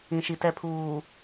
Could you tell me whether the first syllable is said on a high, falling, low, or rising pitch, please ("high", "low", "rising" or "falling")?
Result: low